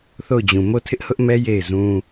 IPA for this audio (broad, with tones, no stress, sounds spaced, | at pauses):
θ o˦˨ ʊ̯ d͡ʑ ũ˨ m o˦˨ tʰ ɪ˦ ʔ h ʊ˦ ʔ m ɛ˦ j e˦˨ ɪ̯ z ũ˦